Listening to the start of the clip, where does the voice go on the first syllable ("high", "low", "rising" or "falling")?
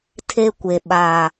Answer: high